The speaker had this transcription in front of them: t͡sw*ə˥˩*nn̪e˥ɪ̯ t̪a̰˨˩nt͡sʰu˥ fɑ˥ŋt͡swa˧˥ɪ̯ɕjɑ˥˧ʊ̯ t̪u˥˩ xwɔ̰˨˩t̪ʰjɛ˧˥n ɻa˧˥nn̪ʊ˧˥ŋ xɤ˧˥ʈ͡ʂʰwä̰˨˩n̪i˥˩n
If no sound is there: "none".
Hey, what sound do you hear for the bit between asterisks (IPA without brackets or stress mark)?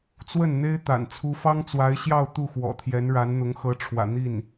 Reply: ə˥˩